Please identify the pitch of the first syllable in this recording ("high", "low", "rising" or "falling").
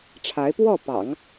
rising